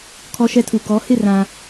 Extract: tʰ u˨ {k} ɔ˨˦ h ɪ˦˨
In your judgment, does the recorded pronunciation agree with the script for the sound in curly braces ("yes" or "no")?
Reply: yes